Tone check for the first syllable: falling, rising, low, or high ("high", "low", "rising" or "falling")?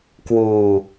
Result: low